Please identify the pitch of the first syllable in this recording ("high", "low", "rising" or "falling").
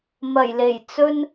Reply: low